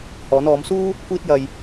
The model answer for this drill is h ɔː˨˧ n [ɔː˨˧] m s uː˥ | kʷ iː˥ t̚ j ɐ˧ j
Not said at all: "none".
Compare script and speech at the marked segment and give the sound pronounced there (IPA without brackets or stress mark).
ɔː˨˧